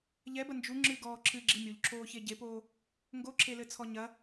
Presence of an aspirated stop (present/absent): present